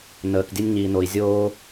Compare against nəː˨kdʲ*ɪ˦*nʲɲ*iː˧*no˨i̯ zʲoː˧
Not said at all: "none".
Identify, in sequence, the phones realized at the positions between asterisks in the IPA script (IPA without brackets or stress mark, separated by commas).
ə˦, iː˨